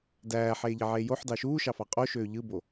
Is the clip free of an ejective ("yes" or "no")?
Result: no